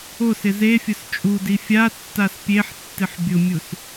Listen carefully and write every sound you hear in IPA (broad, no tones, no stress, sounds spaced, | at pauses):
o s ɪ z e fʲ ʊ s t͡ʃʼ u d i fʲ a tː a s pʲ e ħ tː ɪ ħ bʲ ʊ mʲ u s